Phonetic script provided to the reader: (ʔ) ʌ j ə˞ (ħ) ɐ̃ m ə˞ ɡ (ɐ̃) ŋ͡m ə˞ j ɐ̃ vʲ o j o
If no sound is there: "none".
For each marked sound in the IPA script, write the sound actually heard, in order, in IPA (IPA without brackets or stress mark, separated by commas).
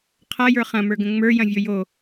qʰ, χ, ə̃